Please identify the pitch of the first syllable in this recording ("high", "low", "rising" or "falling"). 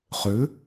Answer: rising